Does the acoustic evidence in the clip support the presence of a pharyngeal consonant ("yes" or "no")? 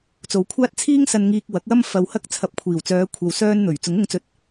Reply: no